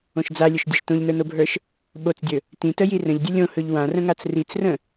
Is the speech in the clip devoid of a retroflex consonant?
yes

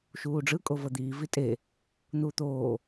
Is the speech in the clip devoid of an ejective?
no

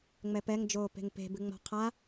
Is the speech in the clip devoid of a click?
yes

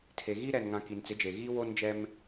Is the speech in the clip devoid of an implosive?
yes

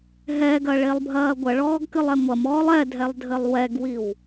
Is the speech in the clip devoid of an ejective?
yes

